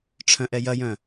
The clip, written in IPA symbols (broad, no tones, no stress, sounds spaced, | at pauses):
ʈ͡ʂʰ œ̃ ʔ ɛ j ɐ j œ̃